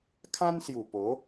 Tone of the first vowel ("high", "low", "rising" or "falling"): high